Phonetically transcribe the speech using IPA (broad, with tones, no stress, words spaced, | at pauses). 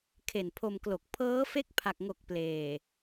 kʰe˨˩npʰo˧mklo˨˩k̚ pʰɤː˦˥fe˥˩k̚pʰa˨˩k̚ŋo˨˩k̚ pleː˨˩